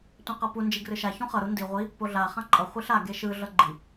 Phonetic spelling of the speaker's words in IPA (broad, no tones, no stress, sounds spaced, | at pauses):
tʷ ã q ʌ p u n d͡ʒ i ɡ r ɯ ʃ a ç ũ χ ʌ ɾ u n d i ʁʷ i | p o ɮ a χ ã ǃʼ ʌ χʷ i ɬ a ɡ e ʃ ɯ ɮ ʌ ɡ͡ǃ i